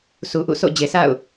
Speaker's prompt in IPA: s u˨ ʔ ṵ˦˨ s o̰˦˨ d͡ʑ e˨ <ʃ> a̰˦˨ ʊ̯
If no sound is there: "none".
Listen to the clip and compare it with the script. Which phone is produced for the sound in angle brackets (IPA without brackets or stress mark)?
s